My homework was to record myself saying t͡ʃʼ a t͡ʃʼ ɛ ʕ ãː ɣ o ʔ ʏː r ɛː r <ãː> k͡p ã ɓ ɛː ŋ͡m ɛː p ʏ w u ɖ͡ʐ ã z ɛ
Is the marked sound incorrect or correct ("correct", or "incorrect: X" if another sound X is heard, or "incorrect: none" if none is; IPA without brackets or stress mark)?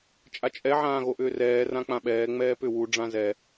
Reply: incorrect: ã